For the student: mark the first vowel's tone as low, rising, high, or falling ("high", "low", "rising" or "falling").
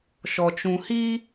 low